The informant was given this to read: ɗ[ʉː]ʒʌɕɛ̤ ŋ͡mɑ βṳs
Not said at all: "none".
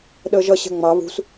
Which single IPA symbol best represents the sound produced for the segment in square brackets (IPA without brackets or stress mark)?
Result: əː